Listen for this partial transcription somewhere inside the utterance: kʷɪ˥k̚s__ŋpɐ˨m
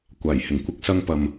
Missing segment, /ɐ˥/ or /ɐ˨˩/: ɐ˥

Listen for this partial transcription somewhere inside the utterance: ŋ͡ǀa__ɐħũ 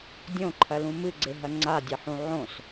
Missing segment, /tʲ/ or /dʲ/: dʲ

